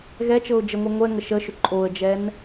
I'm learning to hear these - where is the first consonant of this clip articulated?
velum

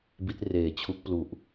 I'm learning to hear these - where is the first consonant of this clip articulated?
lips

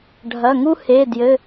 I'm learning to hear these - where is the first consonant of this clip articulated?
retroflex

